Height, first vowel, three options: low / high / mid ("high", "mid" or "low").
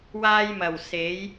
low